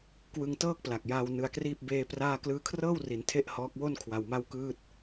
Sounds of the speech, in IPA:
k w ɯ˧ ŋ t ɤː˥˩ k̚ p l a˨˩ k̚ j aː˧ w n ɯ˧ a̯ k r iː˥˩ p̚ b eː˧ p r aː˥˩ k l ɯː˦˥ kʰ r ɤː˥˩ w r i˩˦ n tʰ e˥˩ ʔ h ɔː˦˥ k̚ w o˥˩ n kʰ w a˧ w m a˥˩ w k ɯː˥˩ t̚

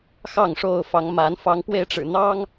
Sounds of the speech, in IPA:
x ɑ˥˨ ŋ ʂ o˥˨ ʊ̯ f ɑ˨˦ ŋ m a˨˦ n f ɑ˨˦ ŋ p w e˧ ɪ̯ ʈ͡ʂ ɻ̩˨˩ n̪ ɑ˦ ŋ

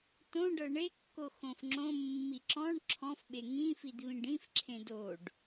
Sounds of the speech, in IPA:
t õ ɖ ɤ ɳ e kː o x õ f ŋ͡ǁ õ mː i ǁ ɔ̃ ɳ ǁʰ ɔ̃ f ɓ e ŋ ĩ f i d β ĩ ɖ ĩ f ǁʰ ẽ d o ɖ

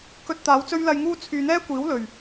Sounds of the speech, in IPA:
k ɵ˧ t̚ t̪ aː˨˥ w t͡s ɵ˥ ɥ l ɐ˧ j ŋ uː˥ t͡sʰ yː˧ n̪ ɛː˥ kʷ iː˨˥ w l ɵ˨˩ ɥ

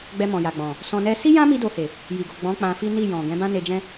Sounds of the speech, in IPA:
ɡ͡b ɛ˧ m ɔ̃˨ j a˨ ɡ͡b ɔ̃˨ | s ɔ̃˧ n ɛ˦ s i˦ j ã˦ m i˧ d o˧ h e˨ | j i˨ ɡ o˨ ɡ͡b ɔ̃˨˦ k͡p ã˧ f i˦ n i˦˨ j ɔ̃˨ ɡ ɛ̃˨˦ b ã˦ n e˧ d͡ʒ ɛ̃˦

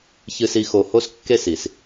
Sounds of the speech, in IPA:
ç ɨ˨ s i˨ x o˨ h o˦ s kː e˦˨ s i˨ s

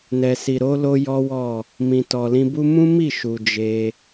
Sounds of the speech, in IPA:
n ɛ˨ s i˨ ɾ o˨˦ l o˦ j ɔ˦ w ɔ˦˨ | m ĩ˨ t ɔ˨ l ĩ˧ b u˦ m ũ˦ m i˦˨ ʃ u˨ d͡ʒ e˧

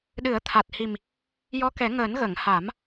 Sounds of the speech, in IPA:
ɗ ɨ˨˩˦ ə̯ t̪ʰ a˨˩ t̚ h i˨˩ m | j ɔ˧˥ k ɛ˨˩˦ ŋ əː˨˩˦ n ɣ ə˨˩˨ ŋ h a˨˩˦ m

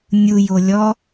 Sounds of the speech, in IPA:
nʲ u j o lʲ ɔ

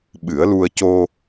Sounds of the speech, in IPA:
ɓ ɨ˨˩˦ ə̯ l u˧ ə̯ c o˧

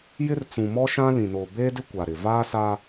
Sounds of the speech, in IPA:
j ɪ˦ r t͡s ũ˨ m ɔ˦ ʃ ã˦ l ĩ˨ n oː˨ b eː˦ d ɪ˦ kʷ a˨ ɾ ɪ˨ v aː˦ s a˦

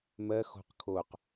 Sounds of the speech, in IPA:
m ɜ x o̤ q kʰ o q

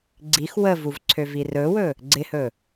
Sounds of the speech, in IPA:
ɡ͡ǀ i x w ə v u v ǀʰ ø v i r ɵ w ɵ | ɡ͡ǀ ɪ h ɵ

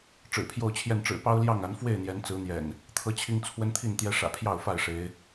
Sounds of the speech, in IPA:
ʈ͡ʂ ɻ̩˨˩ pʰ j o˥˨ ʊ̯ t͡ɕʰ j ɛ˥˨ n ʈ͡ʂ ɻ̩˨˩ p ɑ˦ ʊ̯ l j ɑ˥˨ ŋ a˨˦ n f w e˥˨ ɪ̯ n̪ j ɛ˨˦ n t͡s ɹ̩˨˦ n̪ j ɛ̰˨˩ n | t̪ʰ ɤ˦ t͡ɕʰ i˦ ŋ t͡sʰ w ə˦ n t̪ʰ i˥˨ n t̪ j ɛ˦ ʂ ä̰˨˩ pʰ j ɑ˥˨ ʊ̯ f a˥˨ ɪ̯ ʂ e˨˦ ɪ̯

